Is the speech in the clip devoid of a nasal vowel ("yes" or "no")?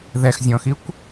no